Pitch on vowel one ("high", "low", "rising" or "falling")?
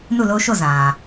falling